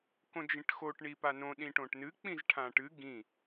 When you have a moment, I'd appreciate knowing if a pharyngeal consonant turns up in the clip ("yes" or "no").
no